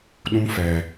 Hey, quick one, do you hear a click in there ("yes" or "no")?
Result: no